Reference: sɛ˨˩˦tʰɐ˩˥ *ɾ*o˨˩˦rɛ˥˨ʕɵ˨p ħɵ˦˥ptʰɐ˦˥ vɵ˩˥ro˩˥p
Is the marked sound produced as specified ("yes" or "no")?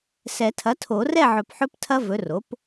no